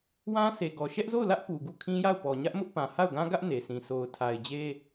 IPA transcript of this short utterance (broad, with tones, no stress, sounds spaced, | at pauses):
w ã˦ sʰ e˨ ɡ ɔ˨ ʃ ɛ˦ ʔ z o˦˨ ʊ̯ l ä˦ ʔ p u˨ ɡ u˦˨ kʰ ĩ˦ j a˦˨ ʊ̯ p ɔ˨ ɲ ä˦ ʔ m ʊ˦ ʔ p ã˨ h a˦˨ ʊ̯ ɡ ã˦ ɡ ä˦ ʔ n e˨ s ĩ˨ sʰ o˨ ʊ̯ tʰ a˨ ɪ̯ d͡ʑ e˦